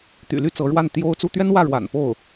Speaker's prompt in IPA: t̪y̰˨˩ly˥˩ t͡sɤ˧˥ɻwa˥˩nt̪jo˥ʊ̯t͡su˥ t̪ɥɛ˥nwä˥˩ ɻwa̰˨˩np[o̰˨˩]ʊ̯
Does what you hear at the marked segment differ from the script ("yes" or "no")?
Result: yes